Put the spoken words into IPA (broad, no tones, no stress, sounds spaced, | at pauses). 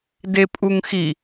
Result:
d e pʼ u ŋ x i